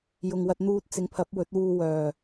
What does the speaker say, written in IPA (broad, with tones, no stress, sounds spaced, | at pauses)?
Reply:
j ʊ˨ ŋ w ɐ˧ t̚ n̪ uː˧ t̚ t͡s ɪ˨˧ ŋ pʰ ɐ˨˥ p̚ w ɵ˨˥ t̚ w uː˧ w œː˨˩